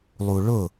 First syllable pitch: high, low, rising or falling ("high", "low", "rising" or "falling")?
low